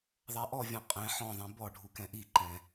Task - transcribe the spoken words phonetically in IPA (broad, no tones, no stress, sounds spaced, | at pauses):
ðˤ a ʔ ɔ vʲ ɔ̃ qʼ ɛ̃ ħ ɔ̃ ðˤ ĩ b ɔ ɖʱ u k ɛ̃ ʔ i ǃ ɛ̃